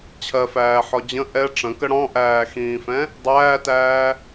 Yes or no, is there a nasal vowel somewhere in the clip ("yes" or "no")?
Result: yes